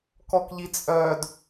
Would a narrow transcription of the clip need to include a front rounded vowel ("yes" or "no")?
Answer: yes